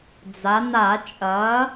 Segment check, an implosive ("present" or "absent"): absent